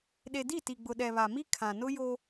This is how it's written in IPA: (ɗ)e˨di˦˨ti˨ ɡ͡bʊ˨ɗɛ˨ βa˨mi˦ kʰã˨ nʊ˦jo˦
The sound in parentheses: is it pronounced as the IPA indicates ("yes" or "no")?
yes